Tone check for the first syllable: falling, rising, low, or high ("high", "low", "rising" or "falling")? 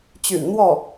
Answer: low